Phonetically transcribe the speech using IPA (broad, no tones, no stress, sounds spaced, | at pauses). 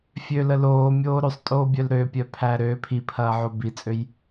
fʲ ø l ə l oː mʲ oː ɾ ø sˤ tʼ oː bʲ œ l ɾ ø pʲ œ pʰ æ ɾ ø pʰ i pʰ ɐː ʕ o b i t͡sʼ ø j